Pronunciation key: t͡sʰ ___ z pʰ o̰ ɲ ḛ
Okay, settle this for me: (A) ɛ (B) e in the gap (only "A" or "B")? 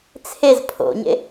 B